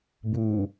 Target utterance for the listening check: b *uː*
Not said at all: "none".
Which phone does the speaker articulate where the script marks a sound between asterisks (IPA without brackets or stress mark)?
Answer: uː